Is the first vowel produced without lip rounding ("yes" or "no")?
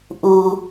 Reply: no